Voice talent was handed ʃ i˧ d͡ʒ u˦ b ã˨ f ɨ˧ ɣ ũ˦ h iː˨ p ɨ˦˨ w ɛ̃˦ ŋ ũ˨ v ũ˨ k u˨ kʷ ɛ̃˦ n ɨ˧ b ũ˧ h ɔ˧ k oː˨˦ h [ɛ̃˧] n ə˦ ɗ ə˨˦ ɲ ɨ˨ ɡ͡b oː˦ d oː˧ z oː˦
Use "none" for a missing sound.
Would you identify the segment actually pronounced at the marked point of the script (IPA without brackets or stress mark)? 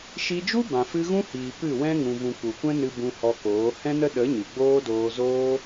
ɛ̃˦